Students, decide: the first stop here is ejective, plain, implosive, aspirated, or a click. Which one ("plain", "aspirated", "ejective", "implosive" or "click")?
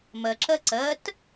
click